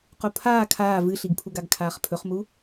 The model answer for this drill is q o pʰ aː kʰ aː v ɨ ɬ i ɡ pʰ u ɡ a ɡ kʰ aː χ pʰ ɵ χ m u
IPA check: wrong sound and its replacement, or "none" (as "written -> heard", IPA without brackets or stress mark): none